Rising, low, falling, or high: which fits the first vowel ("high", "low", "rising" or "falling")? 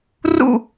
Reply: falling